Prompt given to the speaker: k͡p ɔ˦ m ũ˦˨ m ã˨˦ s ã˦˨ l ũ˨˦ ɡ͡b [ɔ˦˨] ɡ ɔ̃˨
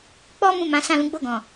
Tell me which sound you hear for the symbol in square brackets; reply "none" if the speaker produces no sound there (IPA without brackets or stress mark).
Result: o˦˨